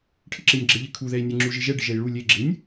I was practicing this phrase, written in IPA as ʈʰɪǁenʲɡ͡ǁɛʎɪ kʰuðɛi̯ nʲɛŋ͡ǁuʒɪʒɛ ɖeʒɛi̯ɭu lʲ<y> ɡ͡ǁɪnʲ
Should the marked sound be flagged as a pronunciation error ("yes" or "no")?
yes